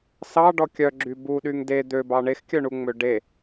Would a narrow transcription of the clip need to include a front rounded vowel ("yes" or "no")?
yes